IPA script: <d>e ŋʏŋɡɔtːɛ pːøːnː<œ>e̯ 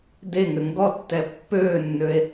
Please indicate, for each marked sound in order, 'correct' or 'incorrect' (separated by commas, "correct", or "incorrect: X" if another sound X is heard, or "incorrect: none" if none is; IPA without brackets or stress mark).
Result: correct, incorrect: ø